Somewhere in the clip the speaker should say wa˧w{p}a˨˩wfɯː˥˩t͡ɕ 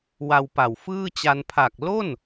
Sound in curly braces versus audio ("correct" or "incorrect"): correct